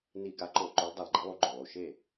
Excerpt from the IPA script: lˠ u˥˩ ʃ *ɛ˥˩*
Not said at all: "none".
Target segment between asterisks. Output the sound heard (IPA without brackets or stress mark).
e˥˩